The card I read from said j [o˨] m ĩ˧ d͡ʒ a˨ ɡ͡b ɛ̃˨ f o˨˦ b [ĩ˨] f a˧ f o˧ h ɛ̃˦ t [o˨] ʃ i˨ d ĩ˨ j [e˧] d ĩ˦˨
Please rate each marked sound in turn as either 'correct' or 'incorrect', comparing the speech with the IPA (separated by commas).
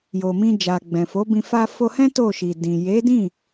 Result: correct, incorrect, incorrect, incorrect